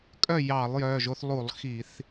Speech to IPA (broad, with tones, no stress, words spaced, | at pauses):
kʼœ˥˨ jɑ˧˩˧lˠ jœ˩˧˩ʒo˦θ lˠu˧˩˧lˠ xi˧˩˧θ